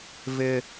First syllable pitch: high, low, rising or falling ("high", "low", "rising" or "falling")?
high